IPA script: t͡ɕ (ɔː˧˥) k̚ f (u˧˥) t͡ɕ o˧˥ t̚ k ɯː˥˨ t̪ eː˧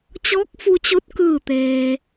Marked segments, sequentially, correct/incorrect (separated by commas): correct, incorrect